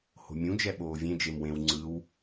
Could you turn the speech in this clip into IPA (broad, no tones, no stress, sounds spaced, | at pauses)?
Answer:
h o̤ mʲ ũ d͡ʒ ɛ ɓ oː vʲ ẽ d͡ʒ e m w ẽ w ŋ͡ǀ ɯ w